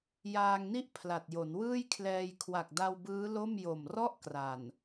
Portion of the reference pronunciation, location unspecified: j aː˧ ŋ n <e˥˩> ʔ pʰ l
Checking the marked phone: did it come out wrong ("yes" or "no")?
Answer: yes